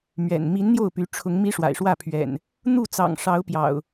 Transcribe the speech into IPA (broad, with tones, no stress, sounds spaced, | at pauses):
m ɥ ɛ̰˨˩ n m i˨˦ n n̪ j o˥˨ ʊ̯ p y˨˦ ʈ͡ʂʰ ʊ˨˦ ŋ m i˦ ʂ w a̰˨˩ ɪ̯ ʂ w ä˥˨ pʰ ɥ ɛ̰˨˩ n | n̪ u˥˨ t͡s ɑ̰˨˩ ŋ ʂ ɑ˨˦ ʊ̯ p j ɑ̰˨˩ ʊ̯